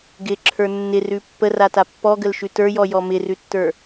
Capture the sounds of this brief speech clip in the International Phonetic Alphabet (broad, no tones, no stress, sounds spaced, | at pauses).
ɡ ɪ ǁʰ ə˞ nː ɪ r ʉ pː ə r a t a pː ɔ ɡ ə l ʃ ʉ t ə˞ j ɔ j ɔ m ɪ r ʉ tː ə˞